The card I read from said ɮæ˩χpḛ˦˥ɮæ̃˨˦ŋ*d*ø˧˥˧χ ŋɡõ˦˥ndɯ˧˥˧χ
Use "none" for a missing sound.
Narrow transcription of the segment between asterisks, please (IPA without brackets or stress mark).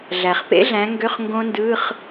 ɡ